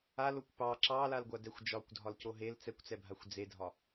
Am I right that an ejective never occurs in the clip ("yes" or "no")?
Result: yes